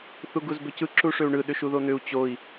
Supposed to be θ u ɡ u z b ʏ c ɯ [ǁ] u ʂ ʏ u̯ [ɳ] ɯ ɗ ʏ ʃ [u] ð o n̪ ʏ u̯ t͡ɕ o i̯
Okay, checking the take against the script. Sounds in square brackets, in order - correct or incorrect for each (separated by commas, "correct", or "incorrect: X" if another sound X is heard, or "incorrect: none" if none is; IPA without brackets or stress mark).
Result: correct, correct, correct